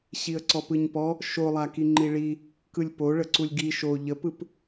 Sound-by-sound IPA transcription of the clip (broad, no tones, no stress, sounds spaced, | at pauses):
ɕ i ə̯ ǀ ɔ p ɯ ɲ p ɔ | ʃ o lˠ a k i ŋ͡ǃ i ɭ i | k ɯ lʲ p o ɭ ə ǀ u lʲ ɡ i ʃ o ʎ ə p ɯ p